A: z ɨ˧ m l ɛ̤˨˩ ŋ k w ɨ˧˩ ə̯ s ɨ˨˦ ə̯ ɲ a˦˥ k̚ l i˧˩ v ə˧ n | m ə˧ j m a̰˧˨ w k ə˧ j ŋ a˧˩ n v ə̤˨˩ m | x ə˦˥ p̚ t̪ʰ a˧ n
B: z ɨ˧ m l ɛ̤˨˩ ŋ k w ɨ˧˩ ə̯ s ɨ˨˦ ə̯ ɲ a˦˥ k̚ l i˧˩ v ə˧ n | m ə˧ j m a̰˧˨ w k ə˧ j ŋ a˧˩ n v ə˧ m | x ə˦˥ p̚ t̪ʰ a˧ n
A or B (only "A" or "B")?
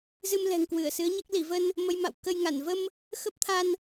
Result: B